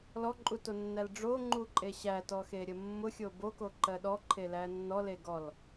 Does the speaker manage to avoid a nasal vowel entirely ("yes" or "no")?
yes